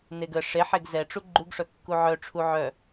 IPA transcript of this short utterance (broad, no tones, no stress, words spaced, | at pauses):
neɡə ʂeħeɡ zɛʈ͡ʂu ɡ͡ǃuɡʂœ kːuʕœʈ͡ʂʰu ʕœ